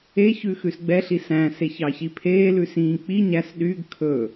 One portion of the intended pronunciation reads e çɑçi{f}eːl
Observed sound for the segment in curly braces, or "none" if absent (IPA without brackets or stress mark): pʰ